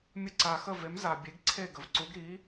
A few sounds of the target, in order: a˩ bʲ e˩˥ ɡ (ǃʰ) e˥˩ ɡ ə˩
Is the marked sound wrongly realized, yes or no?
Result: yes